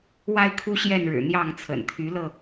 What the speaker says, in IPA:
wa˦ɪ̯kʰu˦ɕjɛ˥˨nɻɻ̩˨˩ n̪jɑ˥˨ŋt͡sʰə̰˨˩n t̪ʰy˨˦lɤ˧

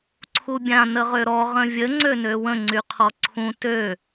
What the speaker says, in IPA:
ǀʰubʲã nəʁøɾɔ ʁə̃vʲə ŋ͡ǀønøwə̃ ŋ͡ǀyqʰɔǀʰũ tø

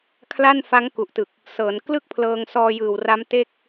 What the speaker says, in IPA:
kʰla˥˩nfa˦˥ŋ ku˨˩ʔtɯ˨˩k̚ | sɤː˩˦n klɯ˥˩k̚pʰlɤː˧ŋ sɔː˧jɯː˨˩w ra˦˥mte˥˩k̚

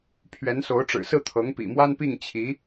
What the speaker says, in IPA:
pʰɥɛ˧˥nso˧˥ʊ̯ʈ͡ʂɻ̩˨˩sɹ̩˥˩ t̪ʰɤ˧˥ŋpḭ˨˩mwa˥npi˥˩ŋ t͡ɕʰi˧˥

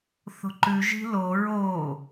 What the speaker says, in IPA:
θo̤ǃʉ ʒi̤lo ɹo

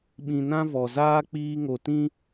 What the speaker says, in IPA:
ɓĩ˧nã˦ vɔ˨zaː˦ k͡piː˦ŋo˧ tĩ˦

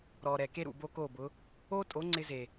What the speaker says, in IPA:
ɾɔ˨ɾɛ˨ke˦ ɾṵ˨bo˦ko˦˨bʊ˨˦ | o˦tʼo˨˦ ŋ͡ǀɪ˦ze˨

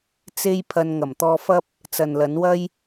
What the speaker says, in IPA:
t͡se˥jpʰɐ˧n ŋɐ˨˩mt̪ɔː˧fɐ˥p̚ | t͡sɐ˨nlɐ˨˥nwɐ˥j

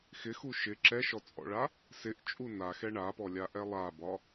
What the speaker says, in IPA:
xɪxu ʃɪ ǁɛʃɔt͡sʼɔ̰ɭa | sɪʔt͡ʃʼu naxɛ ɳapɔlʲaʔɛ lˠabɒ

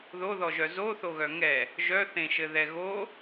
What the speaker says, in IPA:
ðoðɔʒœ zoθoɣœ ŋɛ | ʒœθẽʃɘðɛ ɣo

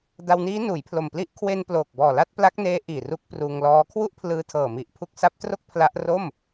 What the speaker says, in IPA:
da˧wniː˦˥ nuː˩˦jpʰlo˨˩mpli˦˥ʔ kʰwe˧n ploː˨˩k̚bɔː˨˩la˥˩t̚ pla˦˥k̚neː˦˥ ʔiː˨˩ru˦˥k̚pruː˧ŋlɔː˦˥ kʰwu˥˩ʔpʰlɯː˧tʰɤː˨˩mi˨˩ʔ pʰu˦˥k̚sa˦˥p̚tro˥˩k̚ pʰla˦˥ʔ ro˥˩m

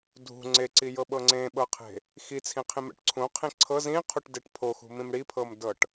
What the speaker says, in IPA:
dʱṳ ŋ͡ǀeǀijɤɓɤ ŋ͡ǀẽɓɤqʰe̤ | xit͡sʰĩqʰĩmɛ̰ʈ ǀʰũqʰĩ ǀʰɤ zĩqʰuʈdeʈ pʰoxṳmĩm ɽipʰɤmdɤʈ

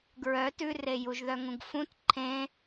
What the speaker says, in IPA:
ɡɹœ tʉre juʒðœŋũɡfũt ǃʰẽ

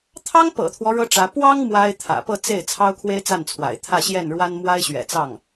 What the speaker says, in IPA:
t̪ʰɑ˥ŋpɤ̰˨˩t̪ʰwɔ˦ ɻɤ˥ʈ͡ʂä˧˥ pwɑ˥ŋ mwa˥ɪ̯t̪ʰä̰˨˩ pɤ˥˧t͡se˥˩ɪ̯ t͡sʰɑ˥ʊ̯kʰwe˥ɪ̯t͡sa˥˩nt͡sʰwa̰˨˩ɪ̯ t̪ʰä˥˧ɕjɛ˥˩nɻwa˥n mwa˥ɪ̯ɕɥɛ̰˨˩t͡sɑ˥˩ŋ

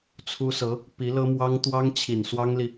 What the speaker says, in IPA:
t͡sʰu˥sɤ˧˥ | pi˧˥lɤ˥mwɑ˥ŋ t̪wɑ˥ŋ t͡ɕʰi˨˩nswɑ˥ŋli˨

